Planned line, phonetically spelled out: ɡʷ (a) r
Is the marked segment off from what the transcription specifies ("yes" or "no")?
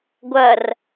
yes